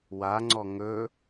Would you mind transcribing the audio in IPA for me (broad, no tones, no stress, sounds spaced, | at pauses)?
w a ŋ͡ǀ ɔ ŋ ɵ